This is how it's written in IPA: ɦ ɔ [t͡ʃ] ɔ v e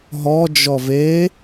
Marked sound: incorrect: d͡ʒ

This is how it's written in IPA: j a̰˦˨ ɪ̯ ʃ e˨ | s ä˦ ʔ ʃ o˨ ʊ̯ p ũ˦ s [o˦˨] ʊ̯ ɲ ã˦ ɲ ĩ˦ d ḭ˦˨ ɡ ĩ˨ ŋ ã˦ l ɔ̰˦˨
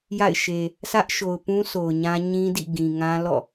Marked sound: incorrect: o˨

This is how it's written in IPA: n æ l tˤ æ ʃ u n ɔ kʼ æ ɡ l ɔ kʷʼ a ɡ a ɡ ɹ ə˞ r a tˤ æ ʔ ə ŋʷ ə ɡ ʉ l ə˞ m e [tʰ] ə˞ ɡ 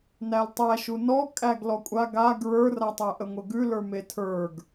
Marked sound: correct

